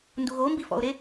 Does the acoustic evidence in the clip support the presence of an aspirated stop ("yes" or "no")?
no